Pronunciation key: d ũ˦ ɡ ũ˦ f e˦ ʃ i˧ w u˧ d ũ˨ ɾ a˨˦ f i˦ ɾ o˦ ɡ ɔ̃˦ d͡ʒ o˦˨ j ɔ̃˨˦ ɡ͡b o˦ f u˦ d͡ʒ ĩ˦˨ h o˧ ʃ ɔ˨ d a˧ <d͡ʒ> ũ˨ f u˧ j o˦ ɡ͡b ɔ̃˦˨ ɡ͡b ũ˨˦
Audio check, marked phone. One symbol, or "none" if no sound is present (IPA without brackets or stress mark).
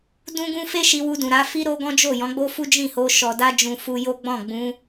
d͡ʒ